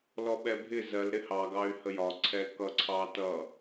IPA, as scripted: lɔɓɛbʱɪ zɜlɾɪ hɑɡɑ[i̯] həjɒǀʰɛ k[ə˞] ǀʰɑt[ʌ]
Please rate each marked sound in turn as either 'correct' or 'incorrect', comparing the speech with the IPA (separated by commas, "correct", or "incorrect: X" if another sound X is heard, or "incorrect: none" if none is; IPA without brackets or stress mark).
incorrect: y̯, incorrect: ʌ, correct